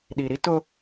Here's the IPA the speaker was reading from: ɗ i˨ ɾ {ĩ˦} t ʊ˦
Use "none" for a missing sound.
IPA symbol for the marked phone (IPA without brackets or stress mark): i˦